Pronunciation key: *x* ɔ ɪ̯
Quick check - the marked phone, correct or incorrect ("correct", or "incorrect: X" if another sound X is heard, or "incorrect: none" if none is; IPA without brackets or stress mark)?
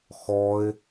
correct